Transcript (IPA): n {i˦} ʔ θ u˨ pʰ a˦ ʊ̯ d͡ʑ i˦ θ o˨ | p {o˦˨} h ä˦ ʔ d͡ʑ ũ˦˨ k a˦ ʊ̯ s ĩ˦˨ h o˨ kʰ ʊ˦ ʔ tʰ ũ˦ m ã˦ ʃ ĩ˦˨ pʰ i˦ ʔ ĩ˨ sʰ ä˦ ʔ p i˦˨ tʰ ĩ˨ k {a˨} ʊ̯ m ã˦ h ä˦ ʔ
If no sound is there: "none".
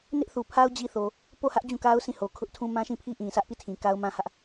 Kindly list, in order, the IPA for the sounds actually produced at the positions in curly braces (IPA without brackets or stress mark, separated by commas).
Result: ɪ˦, o˦˨, a˦